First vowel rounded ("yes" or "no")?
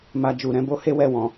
no